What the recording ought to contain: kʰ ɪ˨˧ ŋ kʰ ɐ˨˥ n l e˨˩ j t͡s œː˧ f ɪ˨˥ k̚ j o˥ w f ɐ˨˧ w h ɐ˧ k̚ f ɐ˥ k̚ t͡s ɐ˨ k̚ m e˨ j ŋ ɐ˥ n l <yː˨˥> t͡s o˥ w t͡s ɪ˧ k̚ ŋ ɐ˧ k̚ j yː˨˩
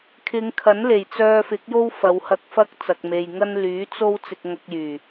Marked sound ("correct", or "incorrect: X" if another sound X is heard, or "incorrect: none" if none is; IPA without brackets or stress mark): correct